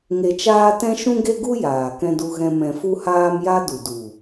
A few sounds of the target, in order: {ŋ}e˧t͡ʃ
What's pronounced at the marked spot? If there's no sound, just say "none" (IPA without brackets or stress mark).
ŋ